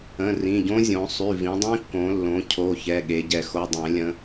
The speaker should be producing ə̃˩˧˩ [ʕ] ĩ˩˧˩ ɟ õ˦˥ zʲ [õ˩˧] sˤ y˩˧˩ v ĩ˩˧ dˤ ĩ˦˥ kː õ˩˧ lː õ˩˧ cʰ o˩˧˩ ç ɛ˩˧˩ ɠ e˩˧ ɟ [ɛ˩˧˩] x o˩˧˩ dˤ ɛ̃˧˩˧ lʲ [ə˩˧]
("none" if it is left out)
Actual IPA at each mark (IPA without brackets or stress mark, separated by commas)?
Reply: r, õ˩˧, ɛ˧˩˧, ə̃˩˧